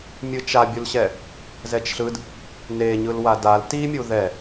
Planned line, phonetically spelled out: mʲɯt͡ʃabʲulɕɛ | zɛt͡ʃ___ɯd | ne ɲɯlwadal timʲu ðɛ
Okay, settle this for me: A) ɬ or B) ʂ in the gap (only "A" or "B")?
A